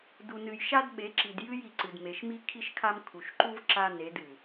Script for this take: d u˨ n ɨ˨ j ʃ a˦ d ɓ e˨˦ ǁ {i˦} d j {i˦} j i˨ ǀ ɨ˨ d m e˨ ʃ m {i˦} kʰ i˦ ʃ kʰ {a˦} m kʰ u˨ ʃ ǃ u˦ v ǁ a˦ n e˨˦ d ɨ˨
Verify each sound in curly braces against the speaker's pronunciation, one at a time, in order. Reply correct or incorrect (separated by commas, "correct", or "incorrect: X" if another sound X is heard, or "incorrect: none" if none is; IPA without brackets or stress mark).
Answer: incorrect: i˨, incorrect: ɨ˦, correct, correct